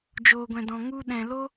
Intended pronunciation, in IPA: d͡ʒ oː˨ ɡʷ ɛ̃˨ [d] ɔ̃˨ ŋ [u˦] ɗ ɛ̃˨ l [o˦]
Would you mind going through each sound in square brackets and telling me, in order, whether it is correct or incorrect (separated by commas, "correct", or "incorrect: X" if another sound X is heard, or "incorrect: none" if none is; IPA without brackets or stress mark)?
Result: correct, correct, correct